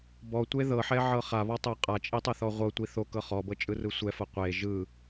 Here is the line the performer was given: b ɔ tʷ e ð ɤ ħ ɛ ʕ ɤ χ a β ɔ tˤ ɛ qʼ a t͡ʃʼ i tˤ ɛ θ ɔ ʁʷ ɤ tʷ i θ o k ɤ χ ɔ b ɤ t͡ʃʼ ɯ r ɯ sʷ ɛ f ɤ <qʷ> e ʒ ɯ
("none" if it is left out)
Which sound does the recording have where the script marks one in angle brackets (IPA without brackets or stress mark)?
qʷ